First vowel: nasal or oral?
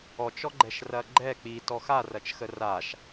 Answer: oral